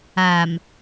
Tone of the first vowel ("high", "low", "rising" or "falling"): low